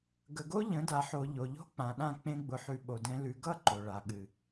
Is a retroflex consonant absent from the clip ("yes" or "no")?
no